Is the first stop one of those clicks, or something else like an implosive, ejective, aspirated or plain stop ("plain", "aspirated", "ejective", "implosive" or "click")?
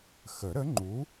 click